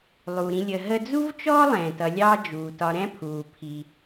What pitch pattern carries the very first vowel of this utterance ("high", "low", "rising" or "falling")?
low